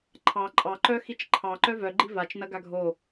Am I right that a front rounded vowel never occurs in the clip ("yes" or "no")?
no